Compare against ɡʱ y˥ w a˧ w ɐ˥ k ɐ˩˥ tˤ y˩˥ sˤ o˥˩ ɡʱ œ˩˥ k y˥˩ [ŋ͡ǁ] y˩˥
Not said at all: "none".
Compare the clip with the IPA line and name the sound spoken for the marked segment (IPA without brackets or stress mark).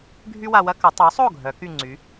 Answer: ŋ͡ǀ